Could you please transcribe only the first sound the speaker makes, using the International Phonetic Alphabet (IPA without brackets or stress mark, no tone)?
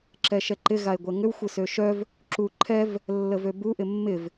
ǁ